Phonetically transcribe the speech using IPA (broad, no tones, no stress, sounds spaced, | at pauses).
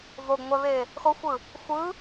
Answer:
v o ɡ ŋʷ ɛ β e | x o xʷ ɯ | xʷ ɯ